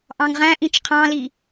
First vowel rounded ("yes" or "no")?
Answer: no